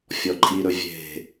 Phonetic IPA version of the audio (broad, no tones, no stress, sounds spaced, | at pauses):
fʲ ɔ ǃʼ i ɾ ɵ vʲ e̤